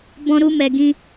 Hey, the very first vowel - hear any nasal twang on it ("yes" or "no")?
yes